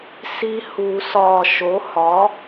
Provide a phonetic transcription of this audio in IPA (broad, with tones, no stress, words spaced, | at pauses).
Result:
si˧ hu˨˩˦sɒː˨˩ ʃo˩˥hɒ˩˥